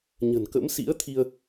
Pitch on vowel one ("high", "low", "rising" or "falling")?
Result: low